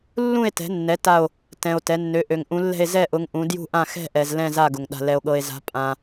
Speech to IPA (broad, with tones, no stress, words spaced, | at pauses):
lːũ˦˨e̯tɛ̤˩˧nːɛ˩˧ ta˦˨o̯ | tɛ̃˩o̯ tɛ˩˧nːø˩˧ ʔø˩ŋ ʔũ˩˧lːɛ̤˦˨e̯ zɛ˦˨ʔʊ˩˧ŋ ʔũ˩˧ djṳ˦˨ʔã˦˨ xɛ̤˦˨ʔɛ˩z lɛ̃˦˨za˦˨ɡʊ˩ŋ ɗa̤˩lɛ˩o̯ɠɤ˩e̯za̤˩˧ pʼã˩